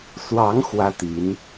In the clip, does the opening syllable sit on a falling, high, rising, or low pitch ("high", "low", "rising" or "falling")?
rising